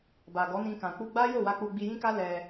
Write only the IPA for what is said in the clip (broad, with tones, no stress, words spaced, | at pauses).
ba˨ɡɔ˨˦nĩ˧kã˨ k͡pu˧ɡ͡ba˦ jo˦˨wa˧ k͡pu˧ɡ͡bi˧jĩ˦ka˦ lɛ˧